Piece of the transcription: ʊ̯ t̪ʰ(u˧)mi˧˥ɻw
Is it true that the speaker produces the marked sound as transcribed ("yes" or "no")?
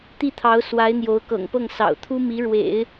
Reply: no